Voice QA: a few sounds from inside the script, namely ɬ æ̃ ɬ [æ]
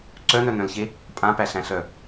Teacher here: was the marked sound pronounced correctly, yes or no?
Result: no